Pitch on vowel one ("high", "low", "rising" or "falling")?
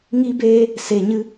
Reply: high